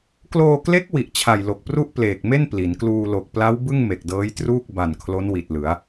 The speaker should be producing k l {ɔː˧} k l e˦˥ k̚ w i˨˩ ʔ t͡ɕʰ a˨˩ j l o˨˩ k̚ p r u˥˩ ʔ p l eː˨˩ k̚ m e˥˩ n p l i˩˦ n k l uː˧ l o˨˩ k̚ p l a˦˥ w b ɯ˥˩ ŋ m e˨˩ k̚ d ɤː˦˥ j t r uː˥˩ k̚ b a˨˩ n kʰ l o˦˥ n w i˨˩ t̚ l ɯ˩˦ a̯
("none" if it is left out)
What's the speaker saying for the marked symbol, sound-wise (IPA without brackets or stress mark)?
oː˧